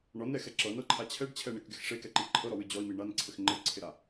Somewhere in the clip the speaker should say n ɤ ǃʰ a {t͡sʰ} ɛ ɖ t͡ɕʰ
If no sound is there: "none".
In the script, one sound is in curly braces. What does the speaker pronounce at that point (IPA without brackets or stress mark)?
t͡ɕʰ